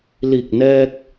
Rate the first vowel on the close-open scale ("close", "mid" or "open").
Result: close